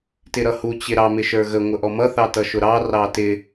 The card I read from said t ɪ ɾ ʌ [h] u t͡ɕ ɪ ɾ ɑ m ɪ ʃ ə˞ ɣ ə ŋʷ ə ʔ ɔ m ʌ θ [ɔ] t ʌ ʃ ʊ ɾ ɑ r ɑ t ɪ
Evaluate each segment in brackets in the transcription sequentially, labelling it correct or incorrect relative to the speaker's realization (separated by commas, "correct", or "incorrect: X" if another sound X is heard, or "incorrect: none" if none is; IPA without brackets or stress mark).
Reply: correct, incorrect: ɑ